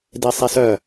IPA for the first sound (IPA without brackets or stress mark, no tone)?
d